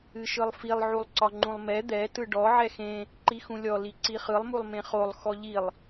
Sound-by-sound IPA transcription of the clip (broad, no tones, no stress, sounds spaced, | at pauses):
ɨ ʃ ɯ lˠ f i lˠ ʕ u lˠ ǀ ɒ ŋ͡ǃ ũ lˠ m ɛ d̪ ɛ t ɯ ɖ ɔ ʕ ɛ x ẽ | ǃ i x ũ lʲ ɔ l i ǀ i χ ɯ lˠ m u lˠ m ẽ χ o lˠ x ɔ ʎ i lˠ